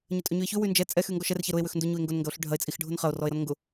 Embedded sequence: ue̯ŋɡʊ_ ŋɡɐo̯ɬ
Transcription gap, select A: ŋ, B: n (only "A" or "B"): B